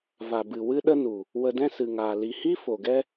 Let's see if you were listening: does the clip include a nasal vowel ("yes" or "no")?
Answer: yes